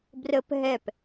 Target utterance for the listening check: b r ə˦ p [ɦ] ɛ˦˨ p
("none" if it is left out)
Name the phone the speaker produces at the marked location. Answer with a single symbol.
ɦ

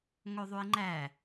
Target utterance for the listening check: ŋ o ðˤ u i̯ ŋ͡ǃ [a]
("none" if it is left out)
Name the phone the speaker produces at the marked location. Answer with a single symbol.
æ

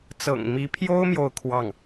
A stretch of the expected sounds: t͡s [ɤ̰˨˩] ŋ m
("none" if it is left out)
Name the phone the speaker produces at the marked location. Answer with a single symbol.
ɤ̰˨˩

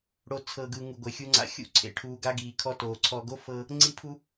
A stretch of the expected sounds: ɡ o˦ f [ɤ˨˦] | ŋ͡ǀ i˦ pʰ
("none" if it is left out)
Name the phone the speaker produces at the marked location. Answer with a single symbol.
ɤ˦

